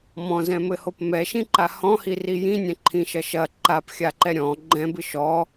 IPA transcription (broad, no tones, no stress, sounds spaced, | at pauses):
m ɔ̃ z ɛ̃ m ɘ h o p m ɛ ʃ ĩ ǃ a h ɔ̃ h i r i j ĩ nʲ ɛ̃ ǃʰ ĩ ʃ ɐ ʃ ɐ ǃ a p xʲ a ǃ ɛ ɾʲ ɔ̃ ɡ͡ǃ ɛ̃ b ɨ ʃ ɔ